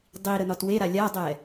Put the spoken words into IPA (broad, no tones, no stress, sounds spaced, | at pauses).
dˤ i ɾ ə n ɒ t w e ɾ a lʲ a dˤ ɛ